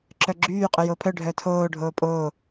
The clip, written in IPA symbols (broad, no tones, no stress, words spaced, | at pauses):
ǁœɡ͡ǁyː qʼɵjoːpʰœ ɖʱœtʰoː ɖʱoːpʼoː